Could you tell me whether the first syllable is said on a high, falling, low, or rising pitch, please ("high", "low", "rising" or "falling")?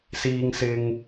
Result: low